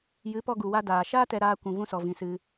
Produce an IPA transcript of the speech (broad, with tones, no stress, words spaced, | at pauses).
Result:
jɨ˨˦pɔ˧ɡu˨wa˧ daː˨ʃaː˦tɛ˧ɾaː˧ kʷũ˨vũ˧sɔ˨vĩ˨ sɨ˧